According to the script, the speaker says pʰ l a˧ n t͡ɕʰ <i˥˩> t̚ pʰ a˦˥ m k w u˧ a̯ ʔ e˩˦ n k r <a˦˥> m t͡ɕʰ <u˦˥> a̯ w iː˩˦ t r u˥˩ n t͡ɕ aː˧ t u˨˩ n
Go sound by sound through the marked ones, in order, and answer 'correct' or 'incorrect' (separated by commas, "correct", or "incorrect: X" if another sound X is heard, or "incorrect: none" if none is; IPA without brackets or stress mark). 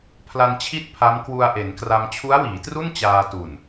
correct, incorrect: a˧, correct